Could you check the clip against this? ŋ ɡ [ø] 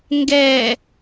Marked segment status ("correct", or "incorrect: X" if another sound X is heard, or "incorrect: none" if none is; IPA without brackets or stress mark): incorrect: ɛ